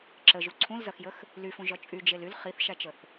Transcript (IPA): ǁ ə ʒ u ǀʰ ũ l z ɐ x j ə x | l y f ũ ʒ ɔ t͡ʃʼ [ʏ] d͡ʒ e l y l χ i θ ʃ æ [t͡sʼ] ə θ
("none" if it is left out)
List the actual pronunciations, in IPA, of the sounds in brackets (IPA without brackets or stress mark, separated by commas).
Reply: y, t͡ʃ